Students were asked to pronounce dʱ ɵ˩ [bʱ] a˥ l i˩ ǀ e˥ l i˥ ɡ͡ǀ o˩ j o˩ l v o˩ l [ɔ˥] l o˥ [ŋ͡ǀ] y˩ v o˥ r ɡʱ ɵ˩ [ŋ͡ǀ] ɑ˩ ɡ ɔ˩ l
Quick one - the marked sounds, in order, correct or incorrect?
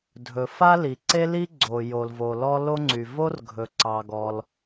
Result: incorrect: f, correct, correct, incorrect: ǀ

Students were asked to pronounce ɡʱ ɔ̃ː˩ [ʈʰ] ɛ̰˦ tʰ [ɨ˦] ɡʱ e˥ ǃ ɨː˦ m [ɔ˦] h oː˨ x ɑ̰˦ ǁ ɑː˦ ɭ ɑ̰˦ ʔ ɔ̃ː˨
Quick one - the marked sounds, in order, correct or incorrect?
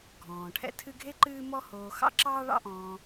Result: correct, correct, correct

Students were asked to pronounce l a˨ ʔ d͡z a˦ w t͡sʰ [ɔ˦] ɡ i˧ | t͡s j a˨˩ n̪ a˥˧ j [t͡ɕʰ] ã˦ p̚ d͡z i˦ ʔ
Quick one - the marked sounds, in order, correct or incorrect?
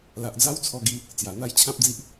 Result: incorrect: ɔ˧, correct

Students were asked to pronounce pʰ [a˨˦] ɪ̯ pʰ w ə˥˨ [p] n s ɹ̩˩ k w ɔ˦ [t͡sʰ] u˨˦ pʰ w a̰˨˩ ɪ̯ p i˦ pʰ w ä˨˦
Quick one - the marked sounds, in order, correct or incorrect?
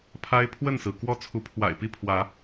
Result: incorrect: a˦, incorrect: none, correct

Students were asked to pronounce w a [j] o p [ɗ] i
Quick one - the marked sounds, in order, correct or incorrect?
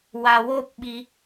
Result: incorrect: w, incorrect: ɓ

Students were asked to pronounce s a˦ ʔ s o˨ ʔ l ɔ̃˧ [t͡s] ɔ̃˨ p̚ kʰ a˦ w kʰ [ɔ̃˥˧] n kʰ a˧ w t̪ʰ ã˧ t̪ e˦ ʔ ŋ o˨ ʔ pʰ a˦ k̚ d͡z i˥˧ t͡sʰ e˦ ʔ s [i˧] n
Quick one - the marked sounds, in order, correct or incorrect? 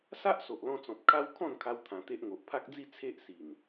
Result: correct, correct, incorrect: i˨˩

